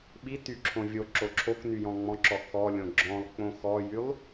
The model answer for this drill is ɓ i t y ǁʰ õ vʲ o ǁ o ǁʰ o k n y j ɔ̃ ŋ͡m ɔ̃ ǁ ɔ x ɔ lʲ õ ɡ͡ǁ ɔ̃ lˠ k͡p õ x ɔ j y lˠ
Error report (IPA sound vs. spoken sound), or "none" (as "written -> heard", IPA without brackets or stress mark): none